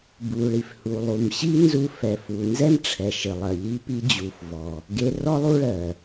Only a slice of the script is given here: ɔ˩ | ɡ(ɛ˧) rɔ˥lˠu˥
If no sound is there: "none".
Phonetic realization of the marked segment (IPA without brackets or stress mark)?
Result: e˧